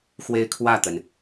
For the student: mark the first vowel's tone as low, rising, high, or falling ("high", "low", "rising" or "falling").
high